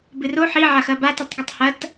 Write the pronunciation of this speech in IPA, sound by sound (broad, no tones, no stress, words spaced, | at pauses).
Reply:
bɨro ħi ʕaxɐba tutˤɡɨtˤhɐt